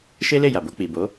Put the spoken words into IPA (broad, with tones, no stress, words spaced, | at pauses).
ʃe˦le˦˨ja˨ bo˧k͡pi˨bo˨˦